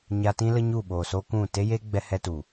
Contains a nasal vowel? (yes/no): yes